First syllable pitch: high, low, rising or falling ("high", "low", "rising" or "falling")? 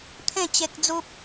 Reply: falling